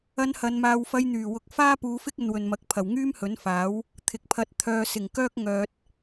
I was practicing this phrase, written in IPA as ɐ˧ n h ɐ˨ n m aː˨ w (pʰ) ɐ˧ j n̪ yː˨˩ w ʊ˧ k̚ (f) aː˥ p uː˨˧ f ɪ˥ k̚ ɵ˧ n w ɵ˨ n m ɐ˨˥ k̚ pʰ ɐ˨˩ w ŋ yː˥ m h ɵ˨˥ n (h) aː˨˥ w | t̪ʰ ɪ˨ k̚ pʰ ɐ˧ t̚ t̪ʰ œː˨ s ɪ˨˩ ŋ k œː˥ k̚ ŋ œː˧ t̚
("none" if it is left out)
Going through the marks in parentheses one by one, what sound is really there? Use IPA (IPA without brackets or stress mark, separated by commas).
f, f, f